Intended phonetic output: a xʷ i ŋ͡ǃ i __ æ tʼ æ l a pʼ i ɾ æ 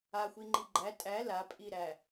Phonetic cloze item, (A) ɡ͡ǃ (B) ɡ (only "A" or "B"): A